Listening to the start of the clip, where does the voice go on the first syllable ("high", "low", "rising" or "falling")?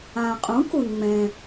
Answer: low